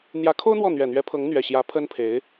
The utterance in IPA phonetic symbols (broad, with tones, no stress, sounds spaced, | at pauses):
n̪ j ä˧˥ kʰ o˥ ʊ̯ n̪ w ɔ˥˩ n̪ ɥ ɛ˨˩ n̪ ɥ ɛ˧˥ pʰ ɤ˧˥ ŋ n̪ ɥ ɛ˨˩ ɕ j ä˧˥ pʰ ə˥ n pʰ e˧˥ ɪ̯